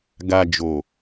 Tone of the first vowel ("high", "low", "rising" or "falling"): low